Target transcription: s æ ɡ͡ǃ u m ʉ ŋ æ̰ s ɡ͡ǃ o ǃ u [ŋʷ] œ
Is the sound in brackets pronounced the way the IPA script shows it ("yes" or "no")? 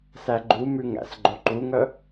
no